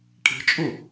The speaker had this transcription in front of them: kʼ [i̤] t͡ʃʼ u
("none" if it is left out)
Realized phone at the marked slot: i̤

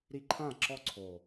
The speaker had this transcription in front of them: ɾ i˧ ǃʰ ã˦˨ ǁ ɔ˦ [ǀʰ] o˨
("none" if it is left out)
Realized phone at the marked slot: ǀʰ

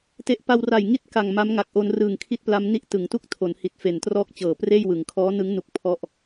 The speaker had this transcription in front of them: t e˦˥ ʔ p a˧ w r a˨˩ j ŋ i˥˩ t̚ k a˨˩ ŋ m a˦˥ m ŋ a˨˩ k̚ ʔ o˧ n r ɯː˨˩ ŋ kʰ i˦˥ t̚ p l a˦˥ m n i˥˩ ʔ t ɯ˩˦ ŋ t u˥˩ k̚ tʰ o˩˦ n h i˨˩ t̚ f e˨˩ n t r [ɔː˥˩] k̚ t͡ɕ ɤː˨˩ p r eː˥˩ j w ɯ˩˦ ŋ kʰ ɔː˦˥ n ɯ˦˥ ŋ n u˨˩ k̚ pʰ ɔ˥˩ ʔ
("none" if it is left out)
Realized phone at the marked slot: ɔː˥˩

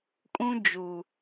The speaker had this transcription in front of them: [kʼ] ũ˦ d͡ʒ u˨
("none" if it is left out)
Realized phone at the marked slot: kʼ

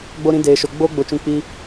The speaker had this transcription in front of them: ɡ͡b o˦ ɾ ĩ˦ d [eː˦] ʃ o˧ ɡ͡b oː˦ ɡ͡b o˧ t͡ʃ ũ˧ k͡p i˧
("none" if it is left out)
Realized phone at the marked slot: eː˧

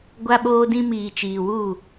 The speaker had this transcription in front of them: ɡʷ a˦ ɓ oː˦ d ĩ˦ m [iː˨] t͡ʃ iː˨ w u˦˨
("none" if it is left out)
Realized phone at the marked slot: iː˨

